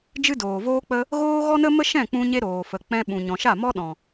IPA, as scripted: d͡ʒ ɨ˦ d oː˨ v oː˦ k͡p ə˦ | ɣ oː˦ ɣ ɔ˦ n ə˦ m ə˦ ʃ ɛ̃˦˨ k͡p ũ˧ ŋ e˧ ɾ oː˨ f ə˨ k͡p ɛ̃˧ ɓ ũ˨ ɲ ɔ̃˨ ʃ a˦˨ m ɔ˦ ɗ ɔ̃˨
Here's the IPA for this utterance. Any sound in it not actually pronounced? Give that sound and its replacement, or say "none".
ŋ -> ɲ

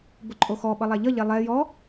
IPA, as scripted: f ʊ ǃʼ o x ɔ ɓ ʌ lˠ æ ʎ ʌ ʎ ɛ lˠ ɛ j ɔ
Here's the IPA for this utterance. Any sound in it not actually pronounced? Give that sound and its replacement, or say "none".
f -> b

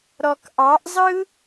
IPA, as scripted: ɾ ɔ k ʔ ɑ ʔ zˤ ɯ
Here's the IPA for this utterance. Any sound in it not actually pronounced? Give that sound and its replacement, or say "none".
none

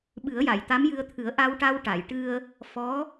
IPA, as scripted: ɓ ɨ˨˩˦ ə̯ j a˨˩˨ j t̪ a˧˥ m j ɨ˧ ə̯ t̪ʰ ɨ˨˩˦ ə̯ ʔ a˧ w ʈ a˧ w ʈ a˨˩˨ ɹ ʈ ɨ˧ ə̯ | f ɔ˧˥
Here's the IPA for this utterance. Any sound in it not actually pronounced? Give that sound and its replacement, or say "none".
ɹ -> j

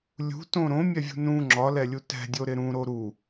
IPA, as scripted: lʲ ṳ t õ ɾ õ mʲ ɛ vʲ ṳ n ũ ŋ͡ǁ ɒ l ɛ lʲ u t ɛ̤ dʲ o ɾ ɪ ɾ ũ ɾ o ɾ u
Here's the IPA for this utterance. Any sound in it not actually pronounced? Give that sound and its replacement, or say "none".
none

